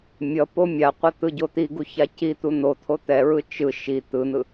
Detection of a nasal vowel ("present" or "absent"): absent